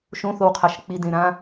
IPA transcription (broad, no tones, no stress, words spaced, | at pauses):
ʃõθowqʰaʃ k͡pidẽɾã